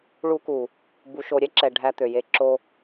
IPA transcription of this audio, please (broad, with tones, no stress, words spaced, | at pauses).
ɭu˦ku˨ | bu˨ʃo˨ɾʲɛ˦ǁɛ˨ ɖʱæ˦t̪ø˨je˦ ǁo˦